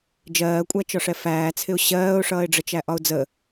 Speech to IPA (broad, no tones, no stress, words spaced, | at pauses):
d͡ʒɜːkʷʼæt͡ʃɒʂɛ fæːt͡sʰɪʊ̯ ɕɜːʊ̯ʂʌːɪ̯ɖ͡ʐət͡ʃæ ʔɒʊ̯d͡zə